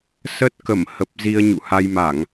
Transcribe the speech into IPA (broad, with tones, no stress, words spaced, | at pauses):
sə˦˥t̚kə˧˩mhə˨˩p̚ zi˧ə̯ɲṵ˧˨ha˧jma˧˩˨ŋ